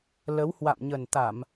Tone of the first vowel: rising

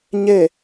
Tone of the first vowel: falling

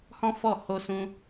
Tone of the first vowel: high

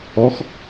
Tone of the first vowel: rising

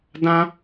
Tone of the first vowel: high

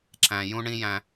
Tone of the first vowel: low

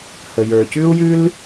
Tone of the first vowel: low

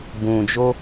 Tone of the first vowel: low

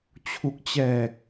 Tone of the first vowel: low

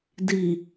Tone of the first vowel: low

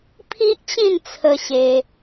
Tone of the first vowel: high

